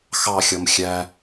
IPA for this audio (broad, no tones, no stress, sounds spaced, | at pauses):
x ɑ xʲ ʌ m xʲ æ